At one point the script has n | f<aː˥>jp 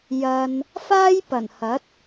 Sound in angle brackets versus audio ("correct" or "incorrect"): correct